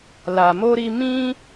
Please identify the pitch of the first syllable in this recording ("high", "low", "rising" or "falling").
low